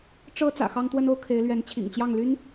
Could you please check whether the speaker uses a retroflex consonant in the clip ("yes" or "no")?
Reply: yes